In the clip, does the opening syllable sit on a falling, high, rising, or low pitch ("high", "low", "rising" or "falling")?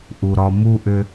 low